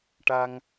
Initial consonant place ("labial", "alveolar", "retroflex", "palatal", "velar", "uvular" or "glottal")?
retroflex